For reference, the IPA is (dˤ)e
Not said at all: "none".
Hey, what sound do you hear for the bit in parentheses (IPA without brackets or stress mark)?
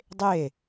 dˤ